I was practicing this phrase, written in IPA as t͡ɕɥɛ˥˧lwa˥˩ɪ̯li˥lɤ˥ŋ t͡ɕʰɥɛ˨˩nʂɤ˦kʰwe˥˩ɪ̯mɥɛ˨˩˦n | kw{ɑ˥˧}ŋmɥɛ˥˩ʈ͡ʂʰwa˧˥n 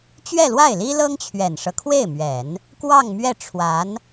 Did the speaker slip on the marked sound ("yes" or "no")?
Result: no